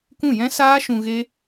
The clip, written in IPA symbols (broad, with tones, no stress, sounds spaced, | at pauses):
k ũ˦˨ j ɛ̃˦ s aː˦ ʃ ũ˧ ɣ e˦